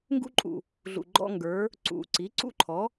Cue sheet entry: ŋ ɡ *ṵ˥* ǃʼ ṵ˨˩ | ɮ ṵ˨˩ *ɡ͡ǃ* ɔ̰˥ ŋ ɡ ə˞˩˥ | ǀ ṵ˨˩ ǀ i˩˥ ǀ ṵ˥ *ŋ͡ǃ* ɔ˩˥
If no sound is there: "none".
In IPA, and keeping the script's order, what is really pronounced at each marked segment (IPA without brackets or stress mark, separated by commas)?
ṵ˥, ɡ͡ǃ, ǃʰ